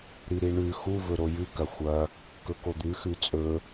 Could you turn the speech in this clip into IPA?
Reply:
ɾ i ɾ i ɳ ʉ x u v ɵ ɾ o j ɨ k ɐ xʷ ɐ | k ɵ k o d̪ ʉ x ʉ t͡sʼ ɵ

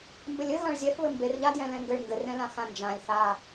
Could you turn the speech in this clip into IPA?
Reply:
m b ɘ lʲ ɘ ɣ ã ɭ zʲ ɛ f β ɘ m b e r ʎ a d j ɛ̃ l ɛ̃ ŋ ɡ ɘ ɭ ŋ ɡ ɘ r ɛ̃ l ã x ã n d͡ʒ ã lʲ θ a

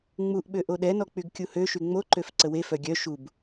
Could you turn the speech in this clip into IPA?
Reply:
ŋ͡m u ʔ ɓ ø ʔ o ɗ ɛ n ɔ k͡p y ɡ kʲ u h ø ʃ y ŋ͡m o ǃ ø f ǀ ə w e f œ ɡʲ œ ʃ u b

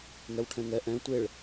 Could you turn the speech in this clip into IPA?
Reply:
ŋ ɛ w ʈʰ ɛ̃ ŋ ɛ ʔ ɛ̃ tʷ e ɭ

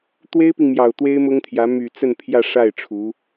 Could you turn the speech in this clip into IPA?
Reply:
t̪ w e˥ ɪ̯ p i˨ ŋ m j ɑ˨˩ ʊ̯ t̪ w e˥ ɪ̯ m ʊ˥ ŋ t̪ʰ j ä˧˥ m y˨˩ t͡s ə˥˧ n pʰ j ä˥˧ ʂ a˥˩ ɪ̯ ʈ͡ʂʰ u˧˥

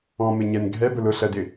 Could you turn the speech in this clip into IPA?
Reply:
ɔ̃ m ɪ ɲ ɛ n ɡʱ ɛ b ʊ l ʊ ɬ ɜ d ɪ

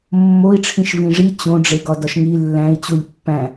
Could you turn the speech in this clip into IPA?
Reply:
mː o i̯ ʈ͡ʂʰ ĩ ʃ v ĩ ʐ i t͡ɕ õ ɖ͡ʐ e ɡ ɒ d ɒ ʃ ŋ i lː æ̃ i̯ t͡ɕ u lʲ pː æ̃

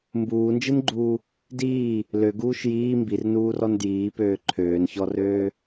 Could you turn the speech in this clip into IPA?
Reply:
m b uː n d͡ʒ ɨ n ɡ͡ǃ uː | d iː | l ø ɡ uː ʃ j iː m b i r n uː r ɔ n d j iː p øː ǃʰ øː n ç ɔ r øː

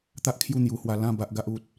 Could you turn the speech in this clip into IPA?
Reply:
t̪ a˦ ʔ kʰ j u˥˧ n̪ j u˧ h w a˧ l ã˥˧ b a˦ ʔ ɡ a˦ ʔ u˦ t̚

